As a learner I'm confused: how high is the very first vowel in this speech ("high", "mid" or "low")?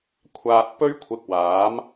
low